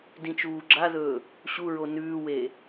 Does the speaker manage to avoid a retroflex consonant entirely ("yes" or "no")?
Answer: yes